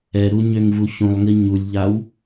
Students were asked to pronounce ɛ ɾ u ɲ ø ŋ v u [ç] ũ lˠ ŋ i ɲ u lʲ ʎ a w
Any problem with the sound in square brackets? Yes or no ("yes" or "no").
no